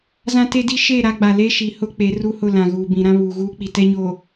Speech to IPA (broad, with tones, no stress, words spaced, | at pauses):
zã˦ te˦di˦ ʃe˦˨ ɾa˦ɡ͡ba˨ le˦ʃi˨hʊ˦ k͡pe˨˦ru˦hʊ˦˨ lã˨ɣuː˨bĩ˨ ɾã˦βuː˨ɣuː˦ k͡pi˨tɛ˦ɲoː˨